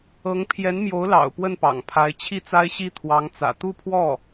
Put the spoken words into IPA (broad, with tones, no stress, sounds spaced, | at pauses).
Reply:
ɤ˧˥ ŋ pʰ j ɛ˧˥ n m j o˧˥ ʊ̯ l ɑ̰˨˩ ʊ̯ p w ə˥˩ n p ɑ̰˨˩ ŋ pʰ a˧˥ ɪ̯ t͡ɕʰ i˥˩ t͡s a˥ ɪ̯ ɕ i˥ t̪ʰ w ɑ˧˥ ŋ t͡s ä̰˨˩ t̪ u˥˧ pʰ w ɔ˥˩